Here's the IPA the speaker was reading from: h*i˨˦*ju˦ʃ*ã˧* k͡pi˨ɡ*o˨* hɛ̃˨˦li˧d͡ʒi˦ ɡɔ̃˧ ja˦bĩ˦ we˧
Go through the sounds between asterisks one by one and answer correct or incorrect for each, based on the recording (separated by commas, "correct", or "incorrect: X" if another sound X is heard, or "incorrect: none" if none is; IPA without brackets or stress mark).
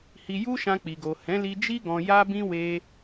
incorrect: i˧, correct, correct